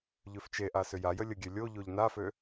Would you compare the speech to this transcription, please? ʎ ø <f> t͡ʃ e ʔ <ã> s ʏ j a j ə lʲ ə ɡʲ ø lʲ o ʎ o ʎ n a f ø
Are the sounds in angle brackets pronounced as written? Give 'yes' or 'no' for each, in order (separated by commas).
yes, no